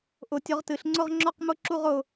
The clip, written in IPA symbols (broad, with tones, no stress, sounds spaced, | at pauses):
ʔ ʊ˨˩˦ tʲ ʊ˨˩˦ ʁ t ɨ˨˩˦ ɬ ŋ͡ǀ ʊ˥˧ ʁ ŋ͡ǁ ɔ˥˧ q m ʊ˥˧ ǁ u˥˧ ʁ ʊ˥˧